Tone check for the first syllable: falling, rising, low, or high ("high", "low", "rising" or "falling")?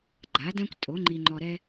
rising